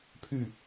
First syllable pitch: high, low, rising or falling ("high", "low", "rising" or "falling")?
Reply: falling